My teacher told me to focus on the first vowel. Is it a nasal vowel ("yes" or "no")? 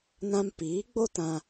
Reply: yes